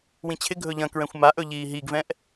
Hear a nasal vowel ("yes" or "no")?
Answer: yes